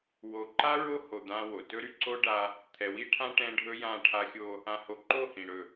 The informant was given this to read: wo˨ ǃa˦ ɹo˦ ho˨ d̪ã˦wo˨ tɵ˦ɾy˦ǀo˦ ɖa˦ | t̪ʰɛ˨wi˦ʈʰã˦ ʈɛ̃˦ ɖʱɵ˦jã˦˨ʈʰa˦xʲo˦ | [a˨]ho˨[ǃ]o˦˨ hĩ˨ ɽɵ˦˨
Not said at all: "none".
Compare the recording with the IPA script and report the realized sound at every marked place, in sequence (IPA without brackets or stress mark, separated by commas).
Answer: ã˨, ǃ